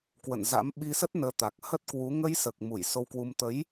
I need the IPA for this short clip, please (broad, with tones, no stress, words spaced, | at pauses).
kwə̰˧˨nza̰˧˥m ɓi˧sə˦˥t̚nəː˨˦ t̪a˨˩k̚hə˦˥t̚kwu˨˦ ŋə˧jsəː˨˩k̚ mu˧˩j so˧wkwu˧m t̪ə˨˦j